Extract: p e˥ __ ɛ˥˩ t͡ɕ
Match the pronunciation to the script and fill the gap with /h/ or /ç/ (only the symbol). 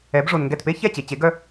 ç